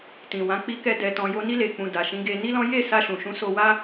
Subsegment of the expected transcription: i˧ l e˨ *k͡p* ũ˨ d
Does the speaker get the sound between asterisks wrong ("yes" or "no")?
no